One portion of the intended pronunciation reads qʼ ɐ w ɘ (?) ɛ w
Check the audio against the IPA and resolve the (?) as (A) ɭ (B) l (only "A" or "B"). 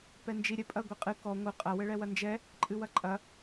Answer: A